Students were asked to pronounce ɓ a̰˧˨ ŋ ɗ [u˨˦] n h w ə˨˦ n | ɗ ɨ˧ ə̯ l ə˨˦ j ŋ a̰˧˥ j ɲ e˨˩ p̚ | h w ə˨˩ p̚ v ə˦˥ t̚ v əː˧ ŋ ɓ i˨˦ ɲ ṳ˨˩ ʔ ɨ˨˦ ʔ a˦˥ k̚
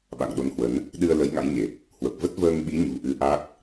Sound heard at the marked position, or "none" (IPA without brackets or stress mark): o˨˦